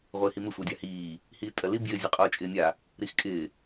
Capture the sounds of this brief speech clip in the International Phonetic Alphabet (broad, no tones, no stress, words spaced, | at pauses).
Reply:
ʁʷɪːhimɪ sʷɜdʲahiː | hiːtʼɜli bjɪ zʲɘqʼoːt͡ʃʼɪːnʲa | ɾixkʼɪː